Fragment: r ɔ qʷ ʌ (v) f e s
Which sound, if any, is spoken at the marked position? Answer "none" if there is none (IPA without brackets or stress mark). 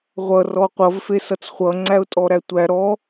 v